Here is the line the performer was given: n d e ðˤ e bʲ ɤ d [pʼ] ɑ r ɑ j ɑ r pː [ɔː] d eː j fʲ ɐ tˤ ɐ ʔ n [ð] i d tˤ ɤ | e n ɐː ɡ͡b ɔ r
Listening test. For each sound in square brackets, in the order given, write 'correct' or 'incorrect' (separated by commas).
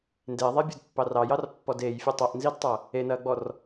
incorrect, incorrect, incorrect